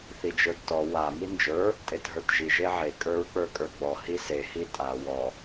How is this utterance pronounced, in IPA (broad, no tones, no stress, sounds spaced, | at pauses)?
θ i d͡ʒ ə˞ d t ɔ w a m i n d͡ʒ ə˞ | tʼ e t ɦ ə˞ t ʒ i ʒ e ʕ e kʼ ə˞ ɹ k͡p ə˞ kʼ ə˞ ɡ͡b ɔ h i s e h i tʼ a w ɔ